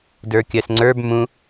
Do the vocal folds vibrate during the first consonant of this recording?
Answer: yes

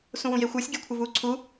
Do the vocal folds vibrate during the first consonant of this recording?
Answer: no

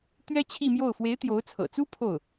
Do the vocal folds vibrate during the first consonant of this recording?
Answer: no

